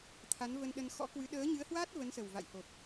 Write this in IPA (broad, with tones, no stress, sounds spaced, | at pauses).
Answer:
t̪ʰ a˨˦ n v ə˧ n ɗ ə˧ n x ɔ̰˧˥ k w ɨ˨˦ ɗ əː˨˦ ɲ ɨ˨˦ ə̯ h w aː˦˥ t̚ v ə˨˦ n s ə˨˩ w v a̰˧˨ j h o˨˩ p̚